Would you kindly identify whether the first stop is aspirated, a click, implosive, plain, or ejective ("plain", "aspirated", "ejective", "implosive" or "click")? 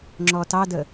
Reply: click